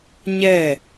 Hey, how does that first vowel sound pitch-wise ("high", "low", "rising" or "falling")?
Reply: falling